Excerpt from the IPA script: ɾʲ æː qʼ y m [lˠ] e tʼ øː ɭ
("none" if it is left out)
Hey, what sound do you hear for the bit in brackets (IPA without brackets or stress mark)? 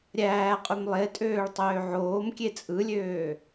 lˠ